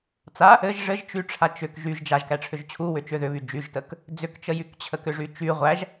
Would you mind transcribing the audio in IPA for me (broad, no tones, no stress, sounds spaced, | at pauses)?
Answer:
t͡s a | ɘ ʒ ʐ ɘ ʒ t͡ʃ y ʈ͡ʂʰ a t͡ʃ ʏ k ʒ y ʒ d͡ʒ a ʒ k æ ʈ͡ʂʰ ʏ ʒ t͡ɕʰ u w ʏ t͡ʃ ʏ ð ʏ β y d͡ʒ y ʒ t ə k | d͡z ʏ k t͡ʃ ə j y k t͡ɕʰ ə k ʏ ʐ y t͡ʃ y ʁʷ æ ʒ